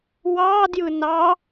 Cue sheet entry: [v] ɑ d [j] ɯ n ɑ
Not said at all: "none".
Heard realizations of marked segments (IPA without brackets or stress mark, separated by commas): w, j